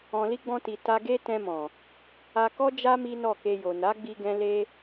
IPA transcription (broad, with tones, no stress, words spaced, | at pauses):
ɔ̃˨ li˧ɡ͡bɔ̃˧ti˨ ta˧ɡe˦ tɛ̃˧mɔ̃˨ | a˧kɔ˦ d͡ʒa˦ mi˦nɔ˦˨ke˧jo˨ na˨˦ɡ͡bi˧ɡɛ̃˧ le˦